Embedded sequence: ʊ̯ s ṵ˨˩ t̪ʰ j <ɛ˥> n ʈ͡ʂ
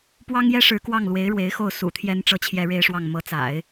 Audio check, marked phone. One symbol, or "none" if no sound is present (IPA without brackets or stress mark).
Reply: ɛ˥